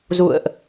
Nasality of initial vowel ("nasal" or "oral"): oral